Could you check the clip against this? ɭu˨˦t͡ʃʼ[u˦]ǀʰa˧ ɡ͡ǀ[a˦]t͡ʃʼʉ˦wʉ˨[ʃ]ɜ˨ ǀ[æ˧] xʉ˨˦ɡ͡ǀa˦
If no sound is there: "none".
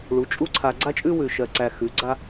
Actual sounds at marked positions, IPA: u˦, a˦, ʃ, æ˧

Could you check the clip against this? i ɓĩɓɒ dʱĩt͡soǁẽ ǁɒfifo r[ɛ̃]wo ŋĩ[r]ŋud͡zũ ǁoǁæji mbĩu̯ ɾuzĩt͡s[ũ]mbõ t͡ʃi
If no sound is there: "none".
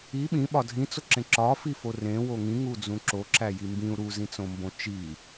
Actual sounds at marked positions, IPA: ẽ, none, õ

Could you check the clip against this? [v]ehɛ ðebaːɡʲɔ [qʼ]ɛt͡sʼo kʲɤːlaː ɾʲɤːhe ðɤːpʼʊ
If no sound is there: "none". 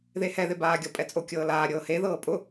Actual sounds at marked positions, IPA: ð, pʼ

